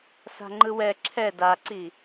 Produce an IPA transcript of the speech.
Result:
s a̤ ŋ͡ǃ ɯ w ɛ ǁʰ ɛ d a ǀ i

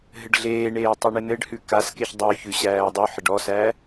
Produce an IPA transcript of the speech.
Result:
ɦ ɘ ɖ ɮ eː ɳ eː tˤ ʉ ɳ ɘ n ɘ ɖ h ʉ k a s k e ç dˤ ʉ ç ʉ ɕ æː dˤ u ħ ɘ ɖ ɔ s æ

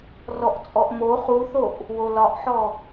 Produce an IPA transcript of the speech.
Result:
r ɔ ʔ t͡sʼ ɔ ʔ m o χ u θ o ʔ | w o l ɒ ʔ ħ ɔ

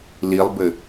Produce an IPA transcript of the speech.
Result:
l i lˠ b ɘ

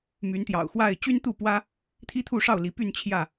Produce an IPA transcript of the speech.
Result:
m y˨˦ n t̪ j ɑ̰˨˩ ʊ̯ x w a˥˨ ɪ̯ t͡ɕ y˦ n t̪ u˥˨ p w ä˦ | t̪ʰ i˦ t̪ʰ u˥˨ ʂ ɑ˥˨ ʊ̯ l i˨˦ p y˥˨ n t͡ɕʰ j ä˥˨

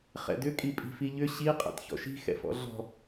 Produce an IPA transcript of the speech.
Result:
χ ɛ̰ d ʏ kʼ i pʼ i̤ f i ʎ ʏ ɕ i qʼ ɛ̰ t ç ɔ̰ ʃ i̤ x ɛ̰ f ɔ̰ ɮ ɔ̤

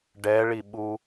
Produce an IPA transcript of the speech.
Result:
ɖ ɛ ɭ i ɓ u

